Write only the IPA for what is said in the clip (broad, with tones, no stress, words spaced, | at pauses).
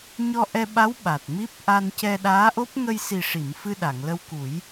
ɲɔ˧ʔɛ˧ɓa˧˥w ɓa˨˩t̚mi˦˥p̚ ʔa˧ncɛ˧ɗaː˧˥ʔo˦˥p̚ ŋə˧jsi˨˩ʂi˨˩˨m fɨ˧ɗa˨˩˨ŋlə˧w ku˨˩˦j